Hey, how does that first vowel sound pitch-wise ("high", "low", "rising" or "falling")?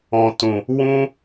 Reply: low